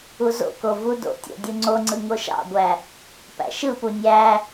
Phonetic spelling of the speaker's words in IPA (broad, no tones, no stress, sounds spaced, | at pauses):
u z o̰ k o v u d o̰ tʲ o̰ dʲ u ŋ͡ǀ o ŋ͡ǀ ɯ ŋ o ʃ ɑ̰ ɡʷ æ | p æ̰ ʃ ɯ p u nʲ æ